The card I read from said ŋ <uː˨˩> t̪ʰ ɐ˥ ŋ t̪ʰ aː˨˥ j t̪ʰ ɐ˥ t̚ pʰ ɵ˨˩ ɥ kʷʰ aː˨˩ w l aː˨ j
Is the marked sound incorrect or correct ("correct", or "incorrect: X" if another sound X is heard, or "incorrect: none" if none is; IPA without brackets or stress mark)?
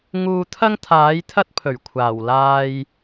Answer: incorrect: uː˧